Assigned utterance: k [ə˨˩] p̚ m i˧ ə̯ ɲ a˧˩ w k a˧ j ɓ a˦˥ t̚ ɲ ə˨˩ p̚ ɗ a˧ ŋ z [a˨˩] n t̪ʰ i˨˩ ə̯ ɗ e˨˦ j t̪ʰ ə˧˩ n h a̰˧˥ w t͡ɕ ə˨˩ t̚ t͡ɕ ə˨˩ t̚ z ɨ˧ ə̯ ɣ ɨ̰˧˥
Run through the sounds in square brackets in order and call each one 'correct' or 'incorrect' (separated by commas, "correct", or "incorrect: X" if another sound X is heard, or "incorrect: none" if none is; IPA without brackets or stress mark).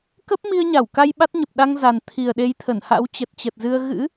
incorrect: ə˦˥, correct